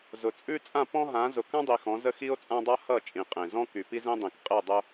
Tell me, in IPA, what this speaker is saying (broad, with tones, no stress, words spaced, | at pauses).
zʊ˨ t͡sʼʉ˦ t͡sʼã˦˨pɔ̃˦ɦã˨˦ zʊ˨kã˦dˤi˨ xɔ̃˨˦zə˦ xi˦o̯t͡sʼã˦dˤa˦ hʌ˦˨ t͡ʃʼĩ˨qʼẽ˨zɔ̃˦ ky˨pi˦zẽ˦dˤĩ˨k qʼe˦˨dˤʊ˦